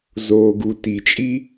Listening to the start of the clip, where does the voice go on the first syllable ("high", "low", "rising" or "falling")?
low